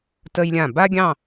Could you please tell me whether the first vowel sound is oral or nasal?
oral